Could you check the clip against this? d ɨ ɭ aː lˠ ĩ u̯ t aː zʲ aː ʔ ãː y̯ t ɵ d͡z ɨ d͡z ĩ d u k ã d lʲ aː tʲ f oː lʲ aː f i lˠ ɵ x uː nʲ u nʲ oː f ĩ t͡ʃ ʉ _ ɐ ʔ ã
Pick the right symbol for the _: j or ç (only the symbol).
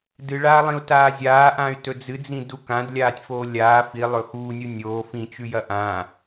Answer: j